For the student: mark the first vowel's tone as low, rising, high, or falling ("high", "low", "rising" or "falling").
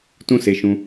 high